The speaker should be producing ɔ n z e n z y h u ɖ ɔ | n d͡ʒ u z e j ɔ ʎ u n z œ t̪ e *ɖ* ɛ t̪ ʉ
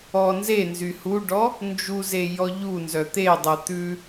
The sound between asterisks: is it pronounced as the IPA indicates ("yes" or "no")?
no